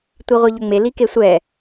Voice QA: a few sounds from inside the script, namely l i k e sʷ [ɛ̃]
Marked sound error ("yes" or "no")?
yes